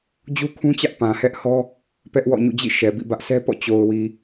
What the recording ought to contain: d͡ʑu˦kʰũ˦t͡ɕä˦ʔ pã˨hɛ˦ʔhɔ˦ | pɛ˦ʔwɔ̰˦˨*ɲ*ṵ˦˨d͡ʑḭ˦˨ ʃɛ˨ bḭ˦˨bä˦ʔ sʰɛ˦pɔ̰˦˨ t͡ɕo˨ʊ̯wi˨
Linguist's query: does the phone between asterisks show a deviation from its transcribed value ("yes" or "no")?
no